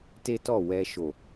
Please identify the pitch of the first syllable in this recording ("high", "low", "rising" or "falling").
high